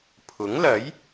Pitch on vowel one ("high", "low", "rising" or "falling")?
rising